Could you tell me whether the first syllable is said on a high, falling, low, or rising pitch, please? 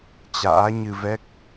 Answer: rising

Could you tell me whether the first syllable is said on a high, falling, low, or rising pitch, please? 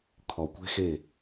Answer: low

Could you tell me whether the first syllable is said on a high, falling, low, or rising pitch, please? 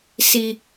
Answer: high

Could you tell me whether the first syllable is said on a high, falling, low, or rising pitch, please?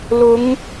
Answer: rising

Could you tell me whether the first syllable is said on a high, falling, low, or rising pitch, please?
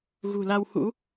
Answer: low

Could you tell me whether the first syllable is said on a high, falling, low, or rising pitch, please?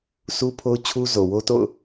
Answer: high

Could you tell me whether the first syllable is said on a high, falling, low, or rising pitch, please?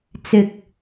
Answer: high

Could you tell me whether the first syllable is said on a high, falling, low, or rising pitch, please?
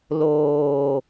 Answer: low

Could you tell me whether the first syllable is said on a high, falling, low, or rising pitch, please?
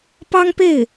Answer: high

